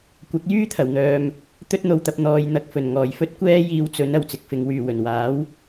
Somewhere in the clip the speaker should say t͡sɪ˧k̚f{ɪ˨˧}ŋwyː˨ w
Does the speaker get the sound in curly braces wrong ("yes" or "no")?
no